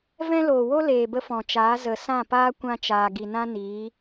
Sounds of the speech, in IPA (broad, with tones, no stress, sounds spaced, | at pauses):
v ɛ̃˦ l oː˨ w o˦ l eː˨ b ə˧ f ɔ̃˨ t͡ʃ aː˨˦ z ə˨ s ã˦˨ p aː˦ kʷ ã˦ t͡ʃ aː˨ ɡ i˨ n ã˦ n iː˨˦